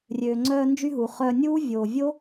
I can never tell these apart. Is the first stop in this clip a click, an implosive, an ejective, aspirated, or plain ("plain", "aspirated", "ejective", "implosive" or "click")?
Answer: click